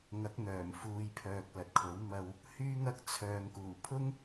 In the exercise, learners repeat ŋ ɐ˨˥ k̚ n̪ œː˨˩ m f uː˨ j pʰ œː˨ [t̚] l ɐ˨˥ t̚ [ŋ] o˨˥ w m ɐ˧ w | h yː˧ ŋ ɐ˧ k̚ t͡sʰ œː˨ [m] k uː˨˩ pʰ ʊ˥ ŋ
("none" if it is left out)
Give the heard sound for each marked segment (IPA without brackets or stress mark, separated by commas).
k̚, kʰ, ŋ